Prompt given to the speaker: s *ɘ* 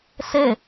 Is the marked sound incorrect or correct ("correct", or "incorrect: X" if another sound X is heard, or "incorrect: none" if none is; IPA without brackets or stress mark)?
incorrect: e